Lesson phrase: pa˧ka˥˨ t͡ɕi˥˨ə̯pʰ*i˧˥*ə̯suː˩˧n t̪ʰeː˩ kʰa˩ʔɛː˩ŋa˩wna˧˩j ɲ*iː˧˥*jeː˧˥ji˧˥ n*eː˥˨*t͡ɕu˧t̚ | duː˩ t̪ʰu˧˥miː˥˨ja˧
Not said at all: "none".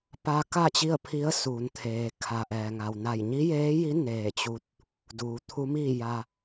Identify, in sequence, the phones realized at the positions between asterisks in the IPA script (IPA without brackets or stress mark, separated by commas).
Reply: i˧˥, i˧˥, eː˧˩